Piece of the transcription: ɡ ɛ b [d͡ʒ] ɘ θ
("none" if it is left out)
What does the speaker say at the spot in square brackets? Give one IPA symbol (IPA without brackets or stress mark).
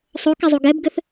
ɡ